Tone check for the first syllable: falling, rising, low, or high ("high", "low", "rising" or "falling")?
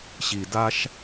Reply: low